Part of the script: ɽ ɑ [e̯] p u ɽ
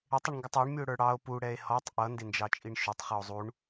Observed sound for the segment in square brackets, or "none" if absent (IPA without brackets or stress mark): o̯